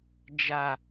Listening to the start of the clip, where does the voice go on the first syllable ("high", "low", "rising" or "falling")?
low